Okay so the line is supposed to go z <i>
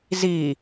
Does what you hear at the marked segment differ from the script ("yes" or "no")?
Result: no